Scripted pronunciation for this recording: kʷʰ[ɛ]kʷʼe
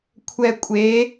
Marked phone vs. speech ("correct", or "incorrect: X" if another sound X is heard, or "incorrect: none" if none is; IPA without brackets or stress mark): correct